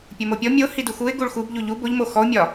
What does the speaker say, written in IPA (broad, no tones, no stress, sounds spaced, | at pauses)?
pʲ o m o pʲ ɔ mʲ o h i d u x u ɪ̯ ɡ u ɭ x u b ʎ u ʎ u b o ʎ m o x ɔ ʊ̯ mʲ ɒ